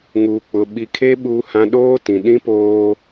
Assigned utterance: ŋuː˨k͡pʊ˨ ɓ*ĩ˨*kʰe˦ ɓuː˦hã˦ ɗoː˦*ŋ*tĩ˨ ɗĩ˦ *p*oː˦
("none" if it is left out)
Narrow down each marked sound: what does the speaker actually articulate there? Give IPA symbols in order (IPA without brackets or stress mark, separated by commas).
i˨, none, p